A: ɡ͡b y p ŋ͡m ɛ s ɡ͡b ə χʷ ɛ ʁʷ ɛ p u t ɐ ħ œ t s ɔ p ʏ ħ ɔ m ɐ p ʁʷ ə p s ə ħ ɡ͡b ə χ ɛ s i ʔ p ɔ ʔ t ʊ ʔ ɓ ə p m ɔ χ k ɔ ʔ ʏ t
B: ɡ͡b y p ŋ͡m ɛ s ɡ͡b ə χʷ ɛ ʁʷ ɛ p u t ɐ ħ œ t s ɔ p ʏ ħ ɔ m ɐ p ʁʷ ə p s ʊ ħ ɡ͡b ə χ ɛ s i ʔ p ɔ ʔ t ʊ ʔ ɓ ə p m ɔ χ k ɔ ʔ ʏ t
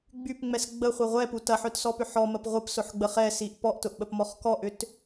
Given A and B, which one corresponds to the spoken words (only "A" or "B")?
B